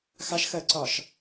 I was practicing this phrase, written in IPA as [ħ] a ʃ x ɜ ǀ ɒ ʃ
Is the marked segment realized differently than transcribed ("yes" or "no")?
yes